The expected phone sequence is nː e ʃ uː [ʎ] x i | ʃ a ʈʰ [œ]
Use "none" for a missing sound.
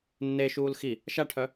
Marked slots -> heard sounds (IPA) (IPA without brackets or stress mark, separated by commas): l, œ